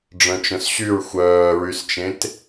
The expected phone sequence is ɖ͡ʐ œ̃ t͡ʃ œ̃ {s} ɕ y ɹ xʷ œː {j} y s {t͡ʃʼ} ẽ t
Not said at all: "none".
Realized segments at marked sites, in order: s, ɹ, t͡ʃ

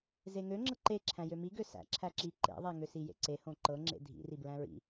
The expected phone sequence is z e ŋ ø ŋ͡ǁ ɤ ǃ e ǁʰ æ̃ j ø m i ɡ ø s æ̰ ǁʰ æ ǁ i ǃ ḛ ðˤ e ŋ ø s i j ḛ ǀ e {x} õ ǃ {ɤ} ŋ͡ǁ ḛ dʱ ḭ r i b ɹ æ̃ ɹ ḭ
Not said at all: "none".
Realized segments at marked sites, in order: h, ɤ

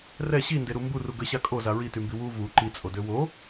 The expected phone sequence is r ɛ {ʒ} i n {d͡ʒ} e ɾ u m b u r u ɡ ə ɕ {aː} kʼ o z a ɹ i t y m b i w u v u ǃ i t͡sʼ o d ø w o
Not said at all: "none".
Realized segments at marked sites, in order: ɕ, d, a

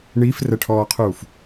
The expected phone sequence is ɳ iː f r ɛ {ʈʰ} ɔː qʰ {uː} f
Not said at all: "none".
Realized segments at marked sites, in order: ʈʰ, uː

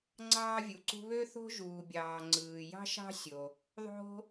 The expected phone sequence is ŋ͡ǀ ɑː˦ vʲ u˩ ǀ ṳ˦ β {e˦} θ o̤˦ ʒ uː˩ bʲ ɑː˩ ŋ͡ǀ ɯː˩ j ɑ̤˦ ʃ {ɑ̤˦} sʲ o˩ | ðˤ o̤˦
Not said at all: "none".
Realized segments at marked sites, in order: ø˦, ɑ̤˦

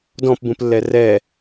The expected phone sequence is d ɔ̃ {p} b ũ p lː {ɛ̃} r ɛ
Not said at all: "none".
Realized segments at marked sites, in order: p, ɛ

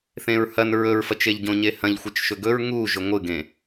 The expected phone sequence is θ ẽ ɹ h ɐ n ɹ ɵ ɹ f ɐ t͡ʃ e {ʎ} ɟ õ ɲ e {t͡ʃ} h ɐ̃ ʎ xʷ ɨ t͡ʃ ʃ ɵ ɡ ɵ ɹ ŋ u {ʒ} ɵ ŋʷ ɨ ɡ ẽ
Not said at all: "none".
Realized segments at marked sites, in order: ʎ, none, ʒ

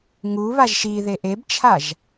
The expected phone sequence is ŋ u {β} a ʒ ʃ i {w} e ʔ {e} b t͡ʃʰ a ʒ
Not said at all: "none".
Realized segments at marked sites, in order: β, ð, e

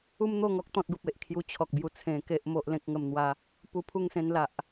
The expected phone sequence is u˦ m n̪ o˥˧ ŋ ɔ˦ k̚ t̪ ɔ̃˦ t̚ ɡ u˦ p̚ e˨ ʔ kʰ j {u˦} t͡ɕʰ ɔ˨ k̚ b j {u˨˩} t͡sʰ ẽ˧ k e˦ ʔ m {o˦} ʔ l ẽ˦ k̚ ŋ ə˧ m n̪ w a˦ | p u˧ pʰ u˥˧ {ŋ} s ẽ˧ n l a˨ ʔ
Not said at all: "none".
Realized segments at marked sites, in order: u˧, u˧, o˦, ŋ

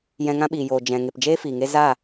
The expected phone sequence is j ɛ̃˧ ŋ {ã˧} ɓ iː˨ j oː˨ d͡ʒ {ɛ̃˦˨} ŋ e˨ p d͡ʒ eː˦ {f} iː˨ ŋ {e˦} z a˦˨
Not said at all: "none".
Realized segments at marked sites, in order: ã˦, ɛ̃˨, f, e˦

